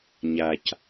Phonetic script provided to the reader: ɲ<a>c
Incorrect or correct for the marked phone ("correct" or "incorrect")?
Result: correct